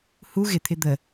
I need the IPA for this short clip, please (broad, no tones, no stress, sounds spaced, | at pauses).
h u ɣ ɪ t̪ʰ ɪ d̪ ə